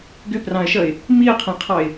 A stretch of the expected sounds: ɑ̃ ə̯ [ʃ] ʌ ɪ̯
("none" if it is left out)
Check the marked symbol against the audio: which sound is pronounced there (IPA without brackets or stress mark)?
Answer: ʃ